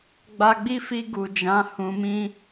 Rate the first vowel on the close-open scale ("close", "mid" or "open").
open